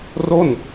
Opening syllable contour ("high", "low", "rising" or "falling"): falling